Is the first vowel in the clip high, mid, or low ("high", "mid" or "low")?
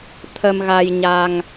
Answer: mid